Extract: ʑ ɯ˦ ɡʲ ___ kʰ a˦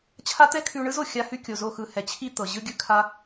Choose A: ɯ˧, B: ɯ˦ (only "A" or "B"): B